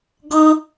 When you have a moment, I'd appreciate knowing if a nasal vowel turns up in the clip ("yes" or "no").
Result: no